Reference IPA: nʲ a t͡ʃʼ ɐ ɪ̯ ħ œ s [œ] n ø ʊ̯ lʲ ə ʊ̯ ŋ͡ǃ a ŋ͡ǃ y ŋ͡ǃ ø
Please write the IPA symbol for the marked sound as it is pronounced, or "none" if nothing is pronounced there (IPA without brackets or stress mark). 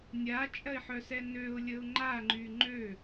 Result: ɛ